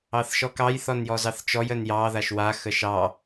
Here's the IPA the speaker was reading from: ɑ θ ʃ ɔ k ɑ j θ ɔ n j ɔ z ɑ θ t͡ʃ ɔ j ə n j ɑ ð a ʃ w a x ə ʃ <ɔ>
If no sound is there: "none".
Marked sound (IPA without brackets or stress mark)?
ɑ